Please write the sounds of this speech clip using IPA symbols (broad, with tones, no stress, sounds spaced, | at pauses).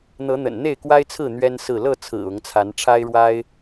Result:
n̪ ɤ˨˦ n̪ ə̰˨˩ n n̪ e˥˨ ɪ̯ k w a˦ ɪ̯ t͡sʰ ɹ̩˥˨ n̪ ɥ ɛ˦ n s ɹ̩˥˨ l ɤ˥˨ t͡sʰ ɹ̩˨˩ ʊ˨˦ ŋ t͡sʰ a˨˦ n ʈ͡ʂʰ a˦ ɪ̯ ɻ w a˦ ɪ̯